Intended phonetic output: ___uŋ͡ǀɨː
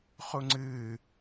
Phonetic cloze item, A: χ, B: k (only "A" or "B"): A